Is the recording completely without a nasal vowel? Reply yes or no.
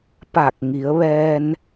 yes